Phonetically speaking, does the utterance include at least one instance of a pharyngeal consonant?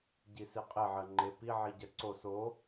yes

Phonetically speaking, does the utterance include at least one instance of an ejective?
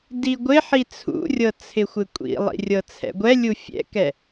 yes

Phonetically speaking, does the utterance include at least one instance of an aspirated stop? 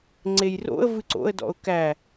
no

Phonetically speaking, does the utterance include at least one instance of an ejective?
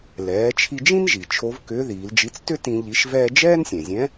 no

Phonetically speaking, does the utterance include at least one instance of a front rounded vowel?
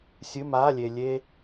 no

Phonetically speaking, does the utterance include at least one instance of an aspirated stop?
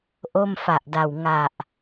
no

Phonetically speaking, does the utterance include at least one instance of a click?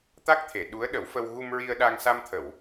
no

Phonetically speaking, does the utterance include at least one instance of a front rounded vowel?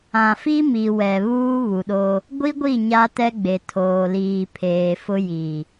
no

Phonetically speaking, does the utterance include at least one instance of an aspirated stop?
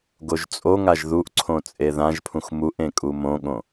yes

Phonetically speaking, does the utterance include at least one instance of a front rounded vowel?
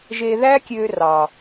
yes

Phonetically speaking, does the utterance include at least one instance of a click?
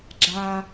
yes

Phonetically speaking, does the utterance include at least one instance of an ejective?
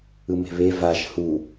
no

